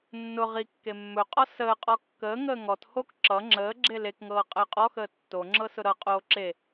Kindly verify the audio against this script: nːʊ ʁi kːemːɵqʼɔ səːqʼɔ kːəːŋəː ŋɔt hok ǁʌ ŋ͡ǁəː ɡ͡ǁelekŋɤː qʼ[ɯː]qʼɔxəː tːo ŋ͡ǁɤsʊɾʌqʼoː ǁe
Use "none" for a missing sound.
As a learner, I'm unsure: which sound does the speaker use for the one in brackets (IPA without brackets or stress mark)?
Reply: əː